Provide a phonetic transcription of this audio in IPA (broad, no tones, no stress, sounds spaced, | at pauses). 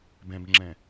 b ɛ̃ b ŋ͡ǁ ɛ̃